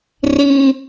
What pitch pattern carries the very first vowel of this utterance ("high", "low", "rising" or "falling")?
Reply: high